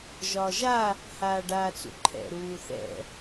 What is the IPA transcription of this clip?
ʒɒːʒa | haːɖaːt͡sṵǃʰɛ̰ ɾuːθɛ̰

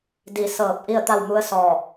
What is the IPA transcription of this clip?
di˧˩ sɤː˧˩p̚ ʔi˥˨ə̯t̪a˥˨wmu˧˥ə̯ sɔː˧˩

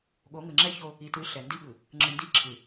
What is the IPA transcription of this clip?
ɠo˨˦ŋɯ˨ŋ͡ǁɛ˦ ço˦ | i˨tɯ˨˦ ɬɛ˨ndi˦ɠɯ˨ | ŋ͡ǁɯ˨ ndi˦ ǁʰɯ˨

